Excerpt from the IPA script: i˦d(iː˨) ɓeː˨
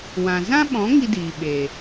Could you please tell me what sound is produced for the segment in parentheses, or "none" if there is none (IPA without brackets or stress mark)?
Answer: iː˨